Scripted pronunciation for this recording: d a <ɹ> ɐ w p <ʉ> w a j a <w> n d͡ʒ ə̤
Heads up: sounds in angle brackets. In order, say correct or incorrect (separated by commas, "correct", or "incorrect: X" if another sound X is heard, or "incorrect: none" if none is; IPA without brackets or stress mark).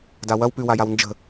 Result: incorrect: w, correct, correct